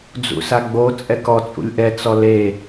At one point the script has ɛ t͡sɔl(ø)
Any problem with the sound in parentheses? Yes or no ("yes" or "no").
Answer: yes